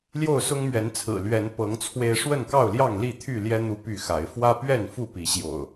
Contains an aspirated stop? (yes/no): yes